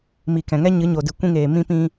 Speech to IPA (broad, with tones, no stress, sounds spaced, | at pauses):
m i˨ k ɛ̃˨ ŋ ɛ˦ ɲ ɨ˨˦ ɲ o˨ d ɨ˨ kʷ ĩ˧ ŋ eː˨ m ĩ˧ p ĩ˧